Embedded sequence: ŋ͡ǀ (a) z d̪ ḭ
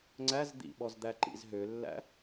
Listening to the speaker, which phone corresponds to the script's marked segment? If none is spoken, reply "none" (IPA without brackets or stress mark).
æ